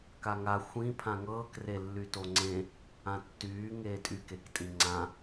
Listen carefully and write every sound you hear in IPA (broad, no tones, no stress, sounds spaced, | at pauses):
k a ŋ a xʷ ĩ pʰ ã ŋ ɤː k r e lː y t o ŋ͡ǀ ẽ | ã tː yː ŋ eː tʼ y k e k tʼ ĩ ŋ͡ǀ ã